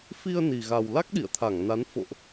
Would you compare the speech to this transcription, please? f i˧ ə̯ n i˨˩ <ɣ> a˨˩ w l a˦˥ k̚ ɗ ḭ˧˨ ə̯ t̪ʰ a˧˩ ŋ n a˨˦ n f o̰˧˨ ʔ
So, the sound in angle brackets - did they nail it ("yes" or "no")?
yes